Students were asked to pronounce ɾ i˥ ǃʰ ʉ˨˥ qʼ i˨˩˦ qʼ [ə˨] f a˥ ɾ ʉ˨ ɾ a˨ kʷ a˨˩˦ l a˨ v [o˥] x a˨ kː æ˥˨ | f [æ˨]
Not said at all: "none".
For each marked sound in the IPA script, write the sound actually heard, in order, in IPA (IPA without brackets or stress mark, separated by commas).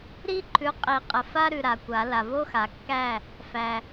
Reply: ə˨, o˥, æ˨